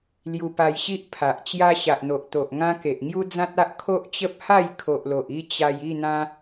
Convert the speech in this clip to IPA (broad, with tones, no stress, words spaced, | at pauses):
lju˧pa˧jɕi˦ʔ pʰa˨ʔt͡ɕja˦ ɕa˨ʔn̪o˨ʔt̪o˨ʔ ŋã˦ke˨ʔ ŋju˦d͡zã˦t̚ a˦ʔkʰo˦ʔ t͡ɕə˦p̚ha˥˧j kʰo˨ʔlo˨ʔ i˥˧ t͡ɕa˧j i˥˧n̪ã˧